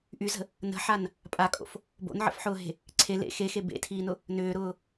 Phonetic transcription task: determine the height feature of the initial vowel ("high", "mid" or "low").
high